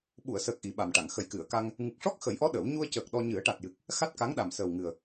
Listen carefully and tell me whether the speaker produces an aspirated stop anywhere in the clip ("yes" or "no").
no